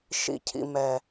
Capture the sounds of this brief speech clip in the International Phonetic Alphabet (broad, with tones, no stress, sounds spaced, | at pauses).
ʃ ḭ˧ cʰ ḭ˧ m ɛ˨